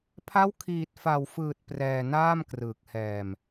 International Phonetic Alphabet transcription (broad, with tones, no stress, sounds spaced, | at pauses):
pʰ a˦˥ w kʰ iː˨˩ t̚ f a˨˩ w f ɯː˨˩ t̚ p r ɛː˧ n aː˥˩ m k r ɯː˨˩ k̚ h ɛː˧ m